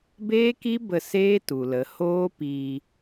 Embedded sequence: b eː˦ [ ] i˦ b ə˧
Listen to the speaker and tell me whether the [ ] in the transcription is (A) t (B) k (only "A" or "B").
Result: B